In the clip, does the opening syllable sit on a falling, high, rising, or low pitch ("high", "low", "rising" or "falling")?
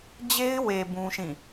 high